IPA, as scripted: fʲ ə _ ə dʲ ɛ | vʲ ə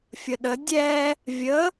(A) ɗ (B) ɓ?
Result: A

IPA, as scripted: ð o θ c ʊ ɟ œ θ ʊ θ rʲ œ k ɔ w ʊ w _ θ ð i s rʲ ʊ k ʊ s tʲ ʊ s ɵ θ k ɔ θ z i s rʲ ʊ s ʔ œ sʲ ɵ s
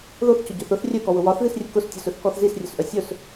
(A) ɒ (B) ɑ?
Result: A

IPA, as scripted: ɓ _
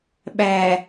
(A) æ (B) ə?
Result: A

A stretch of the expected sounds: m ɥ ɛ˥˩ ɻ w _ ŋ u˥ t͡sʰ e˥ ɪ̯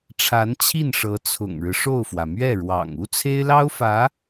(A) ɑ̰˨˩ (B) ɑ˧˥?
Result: A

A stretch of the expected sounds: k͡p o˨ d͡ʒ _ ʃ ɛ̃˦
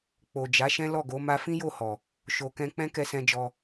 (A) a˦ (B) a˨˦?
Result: B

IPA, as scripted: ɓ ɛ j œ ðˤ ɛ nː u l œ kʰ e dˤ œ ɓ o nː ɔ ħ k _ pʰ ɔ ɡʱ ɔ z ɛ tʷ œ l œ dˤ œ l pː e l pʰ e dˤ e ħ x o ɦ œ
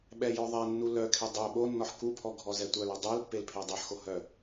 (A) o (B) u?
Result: B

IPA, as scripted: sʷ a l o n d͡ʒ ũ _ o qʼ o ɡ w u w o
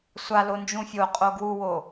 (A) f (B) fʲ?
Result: B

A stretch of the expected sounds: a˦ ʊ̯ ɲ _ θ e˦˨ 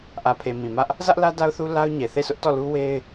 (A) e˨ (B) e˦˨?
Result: A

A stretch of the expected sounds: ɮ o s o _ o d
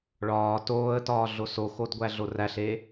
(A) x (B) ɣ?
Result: A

